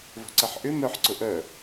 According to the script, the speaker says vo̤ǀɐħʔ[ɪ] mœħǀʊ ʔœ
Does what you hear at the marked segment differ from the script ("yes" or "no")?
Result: yes